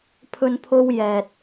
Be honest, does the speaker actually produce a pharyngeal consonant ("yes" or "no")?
no